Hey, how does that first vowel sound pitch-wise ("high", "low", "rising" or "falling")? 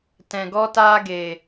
low